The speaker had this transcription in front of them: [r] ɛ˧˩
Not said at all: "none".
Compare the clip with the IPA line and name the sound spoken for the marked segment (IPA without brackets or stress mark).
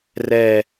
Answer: r